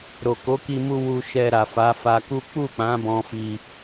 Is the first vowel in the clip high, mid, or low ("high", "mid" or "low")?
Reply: mid